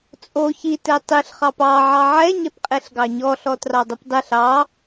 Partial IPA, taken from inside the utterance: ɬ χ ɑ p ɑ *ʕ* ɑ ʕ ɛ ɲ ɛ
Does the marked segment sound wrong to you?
no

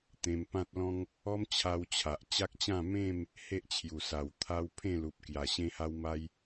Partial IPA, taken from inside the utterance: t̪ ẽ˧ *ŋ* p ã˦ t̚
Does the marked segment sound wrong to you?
yes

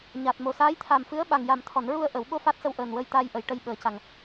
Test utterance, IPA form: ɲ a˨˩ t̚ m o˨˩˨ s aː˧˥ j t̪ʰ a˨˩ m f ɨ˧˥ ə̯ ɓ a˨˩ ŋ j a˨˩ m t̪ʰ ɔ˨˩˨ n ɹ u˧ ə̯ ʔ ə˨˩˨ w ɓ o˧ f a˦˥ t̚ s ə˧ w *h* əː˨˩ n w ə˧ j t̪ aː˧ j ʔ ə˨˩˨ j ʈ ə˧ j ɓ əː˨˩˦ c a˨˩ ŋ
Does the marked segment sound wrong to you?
yes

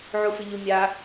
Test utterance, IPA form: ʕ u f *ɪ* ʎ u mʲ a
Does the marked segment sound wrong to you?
no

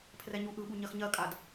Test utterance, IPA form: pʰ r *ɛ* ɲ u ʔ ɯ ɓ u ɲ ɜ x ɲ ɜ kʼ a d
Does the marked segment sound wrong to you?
no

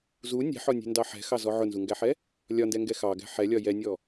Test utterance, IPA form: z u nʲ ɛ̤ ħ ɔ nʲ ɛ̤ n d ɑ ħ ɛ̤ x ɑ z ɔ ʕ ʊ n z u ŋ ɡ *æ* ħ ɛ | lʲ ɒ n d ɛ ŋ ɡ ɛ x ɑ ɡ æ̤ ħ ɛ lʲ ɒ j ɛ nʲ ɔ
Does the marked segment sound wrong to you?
no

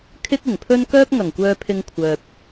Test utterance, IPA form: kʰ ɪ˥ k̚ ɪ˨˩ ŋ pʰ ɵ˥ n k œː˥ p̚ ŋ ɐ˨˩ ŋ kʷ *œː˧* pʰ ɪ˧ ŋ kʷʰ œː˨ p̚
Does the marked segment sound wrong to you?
no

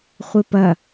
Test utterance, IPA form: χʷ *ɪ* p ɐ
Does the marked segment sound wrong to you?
no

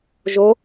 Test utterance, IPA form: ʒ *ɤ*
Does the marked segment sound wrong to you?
yes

